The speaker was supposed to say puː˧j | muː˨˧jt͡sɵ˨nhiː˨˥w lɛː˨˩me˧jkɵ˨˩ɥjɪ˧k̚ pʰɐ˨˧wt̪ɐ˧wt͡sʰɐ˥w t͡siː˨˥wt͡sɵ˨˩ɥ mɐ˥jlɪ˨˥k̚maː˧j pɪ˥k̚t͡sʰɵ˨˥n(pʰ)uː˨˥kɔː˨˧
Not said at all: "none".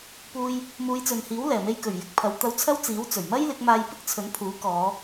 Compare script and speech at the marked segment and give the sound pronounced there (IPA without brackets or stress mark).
pʰ